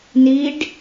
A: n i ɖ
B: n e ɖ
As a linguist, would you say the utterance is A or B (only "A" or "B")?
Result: A